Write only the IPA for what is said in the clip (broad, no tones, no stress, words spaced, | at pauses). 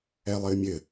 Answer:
ɛlˠɘːmʲɘ